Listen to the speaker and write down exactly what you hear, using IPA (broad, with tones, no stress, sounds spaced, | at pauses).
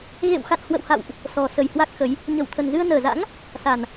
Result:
ɣ ḛ˧˨ w x a̰˧˨ n h w ə̰˧˨ w h a̰˧˨ w ʔ | s ɔ˨˩ s ə˨˩ j h w a˦˥ k̚ x ə˨˦ j | ɲ ə˧˩ w t̪ʰ ə˨˩ n z ɨ˧ ə̯ n əː˨˩ z a̰˧˥ ŋ | s a˨˩ n